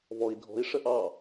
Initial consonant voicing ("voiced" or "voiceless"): voiced